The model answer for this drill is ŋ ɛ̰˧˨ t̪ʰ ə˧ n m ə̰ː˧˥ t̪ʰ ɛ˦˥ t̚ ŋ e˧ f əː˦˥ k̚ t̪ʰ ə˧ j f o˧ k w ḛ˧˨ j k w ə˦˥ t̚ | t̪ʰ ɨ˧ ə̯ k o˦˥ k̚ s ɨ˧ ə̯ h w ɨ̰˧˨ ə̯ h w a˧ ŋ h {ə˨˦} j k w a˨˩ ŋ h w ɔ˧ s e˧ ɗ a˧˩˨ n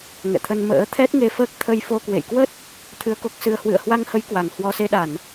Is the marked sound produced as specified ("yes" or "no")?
yes